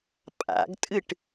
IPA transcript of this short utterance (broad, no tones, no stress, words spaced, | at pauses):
pʼa̰ɡtʼɨʈ